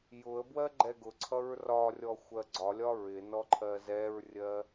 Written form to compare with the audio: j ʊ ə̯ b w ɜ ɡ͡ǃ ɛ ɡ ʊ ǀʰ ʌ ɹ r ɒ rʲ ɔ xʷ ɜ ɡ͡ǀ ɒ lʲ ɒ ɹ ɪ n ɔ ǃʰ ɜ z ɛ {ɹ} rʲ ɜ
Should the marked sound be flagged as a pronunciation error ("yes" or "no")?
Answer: no